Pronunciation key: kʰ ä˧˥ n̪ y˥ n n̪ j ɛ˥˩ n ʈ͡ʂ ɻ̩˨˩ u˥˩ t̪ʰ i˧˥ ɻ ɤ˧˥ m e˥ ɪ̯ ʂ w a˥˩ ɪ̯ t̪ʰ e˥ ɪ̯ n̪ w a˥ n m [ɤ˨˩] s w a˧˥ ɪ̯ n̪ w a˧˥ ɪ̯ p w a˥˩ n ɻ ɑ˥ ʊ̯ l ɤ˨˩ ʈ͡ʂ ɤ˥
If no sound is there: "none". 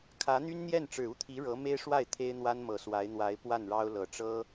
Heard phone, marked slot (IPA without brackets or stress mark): ɤ˨˩